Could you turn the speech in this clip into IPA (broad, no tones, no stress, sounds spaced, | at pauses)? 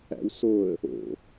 æ̰ w s o ə̯ | o̰